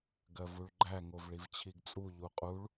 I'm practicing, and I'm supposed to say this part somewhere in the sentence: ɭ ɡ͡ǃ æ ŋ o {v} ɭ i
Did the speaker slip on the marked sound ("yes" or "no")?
no